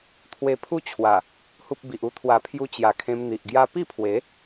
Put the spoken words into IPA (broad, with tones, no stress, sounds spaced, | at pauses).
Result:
t̪ʰ w e˧ pʰ u˦ t͡ɕʰ w a˨˩ | h u˦ p̚ b i˨ ʔ u˧ t̪ʰ w a˨˩ pʰ j u˧ t͡ɕ j a˨˩ kʰ ẽ˧ m n̪ i˨ ʔ ɡ j a˦ p i˥˧ pʰ w e˨˦